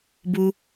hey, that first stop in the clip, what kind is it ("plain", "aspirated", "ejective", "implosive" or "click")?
plain